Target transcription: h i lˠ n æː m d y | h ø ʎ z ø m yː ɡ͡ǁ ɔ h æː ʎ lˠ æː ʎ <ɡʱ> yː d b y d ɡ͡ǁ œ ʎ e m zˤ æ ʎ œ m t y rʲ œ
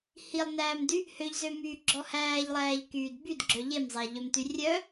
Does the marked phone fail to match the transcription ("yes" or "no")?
yes